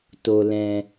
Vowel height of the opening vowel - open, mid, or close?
mid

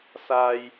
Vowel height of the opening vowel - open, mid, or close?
open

